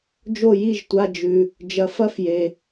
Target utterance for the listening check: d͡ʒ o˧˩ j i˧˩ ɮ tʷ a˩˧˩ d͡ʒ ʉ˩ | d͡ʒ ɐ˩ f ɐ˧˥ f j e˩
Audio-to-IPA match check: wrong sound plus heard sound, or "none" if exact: ɮ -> ʒ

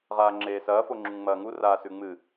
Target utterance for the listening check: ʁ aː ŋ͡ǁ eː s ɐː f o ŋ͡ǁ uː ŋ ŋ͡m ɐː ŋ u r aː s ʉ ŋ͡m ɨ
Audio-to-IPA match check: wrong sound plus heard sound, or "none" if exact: uː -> u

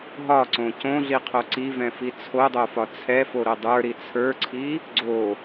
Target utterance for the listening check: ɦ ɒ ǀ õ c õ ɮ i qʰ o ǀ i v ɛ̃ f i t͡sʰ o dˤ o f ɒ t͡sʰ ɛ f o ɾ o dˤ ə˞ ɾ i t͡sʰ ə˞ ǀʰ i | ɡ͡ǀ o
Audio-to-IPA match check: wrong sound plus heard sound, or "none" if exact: none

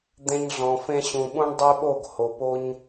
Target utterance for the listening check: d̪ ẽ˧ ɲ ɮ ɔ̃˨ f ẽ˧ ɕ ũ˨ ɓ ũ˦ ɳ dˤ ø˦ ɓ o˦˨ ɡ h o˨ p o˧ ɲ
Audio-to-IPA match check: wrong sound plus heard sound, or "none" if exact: none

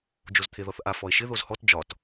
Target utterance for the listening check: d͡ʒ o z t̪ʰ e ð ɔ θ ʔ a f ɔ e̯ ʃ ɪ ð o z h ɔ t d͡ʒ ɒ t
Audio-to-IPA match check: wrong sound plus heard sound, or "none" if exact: none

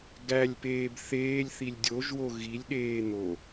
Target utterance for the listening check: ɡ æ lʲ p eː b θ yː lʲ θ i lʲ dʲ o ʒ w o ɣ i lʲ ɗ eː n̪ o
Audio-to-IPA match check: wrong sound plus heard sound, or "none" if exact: yː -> eː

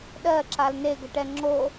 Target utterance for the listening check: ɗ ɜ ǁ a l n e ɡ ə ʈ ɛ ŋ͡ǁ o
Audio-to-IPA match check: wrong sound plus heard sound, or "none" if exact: none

